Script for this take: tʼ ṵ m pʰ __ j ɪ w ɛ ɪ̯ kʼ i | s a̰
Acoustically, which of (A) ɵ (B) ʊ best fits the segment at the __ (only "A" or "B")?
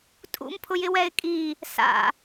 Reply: B